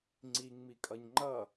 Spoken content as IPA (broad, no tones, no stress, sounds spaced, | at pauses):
ŋ͡ǀ i ŋ m i kʼ ʌ ɲ ŋ͡ǃ ʌ